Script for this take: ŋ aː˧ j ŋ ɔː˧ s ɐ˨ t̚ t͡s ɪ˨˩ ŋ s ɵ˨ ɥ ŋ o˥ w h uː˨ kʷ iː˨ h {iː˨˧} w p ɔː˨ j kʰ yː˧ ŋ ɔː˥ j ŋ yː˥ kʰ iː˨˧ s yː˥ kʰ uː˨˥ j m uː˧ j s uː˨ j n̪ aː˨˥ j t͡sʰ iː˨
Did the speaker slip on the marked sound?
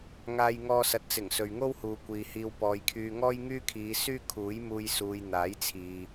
yes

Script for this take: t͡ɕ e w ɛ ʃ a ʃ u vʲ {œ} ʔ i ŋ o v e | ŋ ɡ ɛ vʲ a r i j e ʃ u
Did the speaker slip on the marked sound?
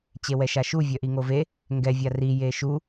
no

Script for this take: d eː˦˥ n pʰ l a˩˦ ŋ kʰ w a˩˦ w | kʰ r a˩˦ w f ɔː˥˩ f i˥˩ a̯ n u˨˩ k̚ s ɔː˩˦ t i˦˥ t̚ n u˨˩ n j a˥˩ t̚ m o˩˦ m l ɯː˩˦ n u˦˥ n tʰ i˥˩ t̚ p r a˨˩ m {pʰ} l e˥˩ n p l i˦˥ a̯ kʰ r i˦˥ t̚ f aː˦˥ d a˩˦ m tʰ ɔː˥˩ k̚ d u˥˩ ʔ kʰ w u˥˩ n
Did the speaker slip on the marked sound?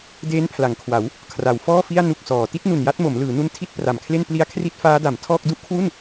yes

